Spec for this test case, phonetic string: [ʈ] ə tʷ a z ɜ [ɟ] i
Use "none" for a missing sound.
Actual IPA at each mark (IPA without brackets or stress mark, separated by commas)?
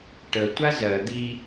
ʈ, d̪